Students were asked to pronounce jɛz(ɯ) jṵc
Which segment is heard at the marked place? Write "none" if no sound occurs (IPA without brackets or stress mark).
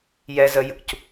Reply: ə